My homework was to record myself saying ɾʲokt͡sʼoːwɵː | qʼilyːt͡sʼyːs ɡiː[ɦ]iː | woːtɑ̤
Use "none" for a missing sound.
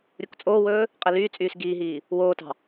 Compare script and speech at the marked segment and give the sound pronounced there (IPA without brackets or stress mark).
ɦ